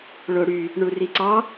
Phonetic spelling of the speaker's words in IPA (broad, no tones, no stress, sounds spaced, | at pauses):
ɭ o ɽ y | ɳ u r i ǀ ɑ